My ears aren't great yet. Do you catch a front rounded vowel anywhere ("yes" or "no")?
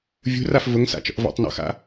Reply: no